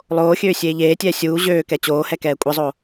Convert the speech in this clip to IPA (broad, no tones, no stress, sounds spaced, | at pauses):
lˠ oː xʲ øː sʲ eː ʎ eː tʲ ɛː sʲ uː ʑ øː k ɛ t͡ɕ oː h ɛ k ɛː kʷʼ ɛ zˤ o